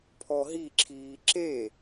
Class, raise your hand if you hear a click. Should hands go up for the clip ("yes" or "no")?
yes